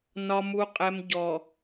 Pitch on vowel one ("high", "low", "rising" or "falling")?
low